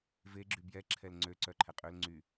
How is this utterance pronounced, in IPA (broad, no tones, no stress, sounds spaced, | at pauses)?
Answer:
v e ɡ͡ǁ y b j ɛ ǁʰ ɛ l ŋ͡ǀ ø ǀ œ ǃʰ ɛ qʼ ø l ŋ͡ǀ y